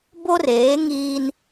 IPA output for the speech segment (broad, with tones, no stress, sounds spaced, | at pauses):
b o˦ r eː˨˦ ŋ iː˦ n